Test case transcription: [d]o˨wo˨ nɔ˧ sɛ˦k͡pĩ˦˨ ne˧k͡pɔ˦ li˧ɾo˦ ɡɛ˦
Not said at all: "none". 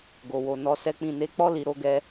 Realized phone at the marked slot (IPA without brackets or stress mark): ɡ